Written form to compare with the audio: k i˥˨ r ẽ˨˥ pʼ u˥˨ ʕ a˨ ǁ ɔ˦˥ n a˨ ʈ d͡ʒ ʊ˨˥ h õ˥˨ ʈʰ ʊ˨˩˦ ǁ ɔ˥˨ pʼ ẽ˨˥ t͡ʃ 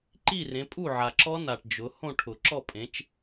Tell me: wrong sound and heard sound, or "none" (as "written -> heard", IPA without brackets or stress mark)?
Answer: k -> ǃ